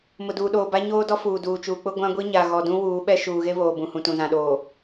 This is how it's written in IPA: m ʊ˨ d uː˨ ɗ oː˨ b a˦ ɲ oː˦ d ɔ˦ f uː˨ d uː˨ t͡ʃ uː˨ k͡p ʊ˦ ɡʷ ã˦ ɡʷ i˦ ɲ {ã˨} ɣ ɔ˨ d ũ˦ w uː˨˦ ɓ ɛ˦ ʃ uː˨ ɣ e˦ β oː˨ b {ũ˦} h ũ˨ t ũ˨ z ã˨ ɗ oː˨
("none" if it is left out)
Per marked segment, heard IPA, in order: a˨, ũ˨

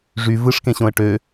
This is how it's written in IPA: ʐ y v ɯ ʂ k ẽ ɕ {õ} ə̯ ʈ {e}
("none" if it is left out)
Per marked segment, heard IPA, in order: õ, ø

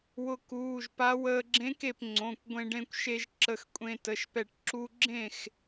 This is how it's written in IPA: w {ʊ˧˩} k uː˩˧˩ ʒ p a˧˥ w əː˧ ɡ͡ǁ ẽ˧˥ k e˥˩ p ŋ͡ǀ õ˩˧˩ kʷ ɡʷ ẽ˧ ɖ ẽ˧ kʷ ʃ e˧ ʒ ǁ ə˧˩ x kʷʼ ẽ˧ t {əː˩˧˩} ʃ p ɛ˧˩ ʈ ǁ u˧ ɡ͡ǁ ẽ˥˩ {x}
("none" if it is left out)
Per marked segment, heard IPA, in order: ʊ˧˩, ə˩˧˩, x

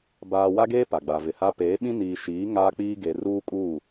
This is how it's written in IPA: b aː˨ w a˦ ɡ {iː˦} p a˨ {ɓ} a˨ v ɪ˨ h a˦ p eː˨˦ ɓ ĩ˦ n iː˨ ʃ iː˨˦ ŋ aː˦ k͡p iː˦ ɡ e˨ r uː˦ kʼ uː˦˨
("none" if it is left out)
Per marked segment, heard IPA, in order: eː˦, ɡ͡b

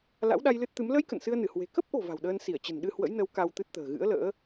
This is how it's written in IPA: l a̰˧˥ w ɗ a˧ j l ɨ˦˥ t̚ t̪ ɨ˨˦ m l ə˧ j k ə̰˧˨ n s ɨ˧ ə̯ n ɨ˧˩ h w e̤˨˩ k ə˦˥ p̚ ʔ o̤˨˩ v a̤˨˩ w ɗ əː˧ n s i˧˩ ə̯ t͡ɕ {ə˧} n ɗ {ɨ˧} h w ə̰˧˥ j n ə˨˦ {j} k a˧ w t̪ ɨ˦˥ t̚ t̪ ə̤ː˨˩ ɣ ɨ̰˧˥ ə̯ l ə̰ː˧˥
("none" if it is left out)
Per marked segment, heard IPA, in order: ə̤˨˩, ɨ˧, w

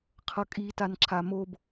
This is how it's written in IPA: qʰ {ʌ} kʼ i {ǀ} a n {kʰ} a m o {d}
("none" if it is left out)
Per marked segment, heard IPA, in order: ʌ, t, ǁʰ, b

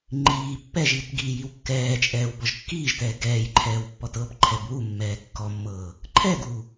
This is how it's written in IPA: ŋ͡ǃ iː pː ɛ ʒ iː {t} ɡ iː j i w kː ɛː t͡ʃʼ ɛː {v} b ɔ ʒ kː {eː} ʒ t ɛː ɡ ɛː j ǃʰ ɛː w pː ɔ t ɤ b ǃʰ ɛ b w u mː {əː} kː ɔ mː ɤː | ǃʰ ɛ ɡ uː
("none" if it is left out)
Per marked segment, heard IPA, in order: t, w, iː, ɛː

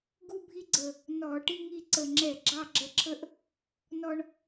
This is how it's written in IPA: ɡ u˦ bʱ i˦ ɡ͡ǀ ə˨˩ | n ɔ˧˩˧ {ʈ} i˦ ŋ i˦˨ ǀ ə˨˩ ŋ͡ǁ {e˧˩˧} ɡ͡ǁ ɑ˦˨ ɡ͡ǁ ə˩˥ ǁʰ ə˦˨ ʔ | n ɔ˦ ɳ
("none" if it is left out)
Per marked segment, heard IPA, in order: ʈ, ɛ˧˩˧

